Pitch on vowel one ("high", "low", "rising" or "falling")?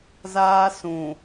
high